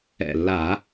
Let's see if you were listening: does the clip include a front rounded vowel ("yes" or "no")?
no